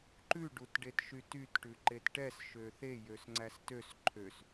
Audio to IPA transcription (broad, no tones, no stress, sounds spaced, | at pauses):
ǃ ʉ ɖ u t ɖ e t ʃ y t y t ʈ ʉ ǃ e t ʈ ɛ s ʃ ø θ e j ø s ŋ͡ǀ æ s t ø s ǃʰ ø s